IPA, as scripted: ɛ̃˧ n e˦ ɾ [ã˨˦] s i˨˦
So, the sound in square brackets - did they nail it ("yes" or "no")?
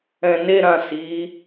no